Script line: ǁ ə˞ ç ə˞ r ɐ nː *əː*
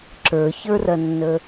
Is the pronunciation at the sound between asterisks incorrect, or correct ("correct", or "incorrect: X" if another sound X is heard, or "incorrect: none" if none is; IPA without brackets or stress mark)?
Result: incorrect: ə